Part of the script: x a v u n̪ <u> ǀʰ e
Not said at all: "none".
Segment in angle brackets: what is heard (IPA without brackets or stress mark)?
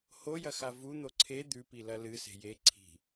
o